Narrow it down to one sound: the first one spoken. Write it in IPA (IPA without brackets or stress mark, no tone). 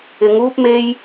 ɪ